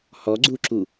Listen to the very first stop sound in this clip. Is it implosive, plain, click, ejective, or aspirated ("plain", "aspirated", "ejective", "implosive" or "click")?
click